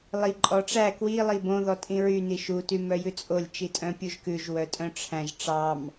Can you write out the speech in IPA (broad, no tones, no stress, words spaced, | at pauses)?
lˠi ǃʼɔʈ͡ʂæ kwi lˠibõ ðɔtʼĩɹy niʃu tymœjʉt͡sʼolʲ t͡ʃitʼœ̃pʲuʒkʉʒ wœtʼœ̃ʈ͡ʂʰæ̃ʒ ʈ͡ʂɑm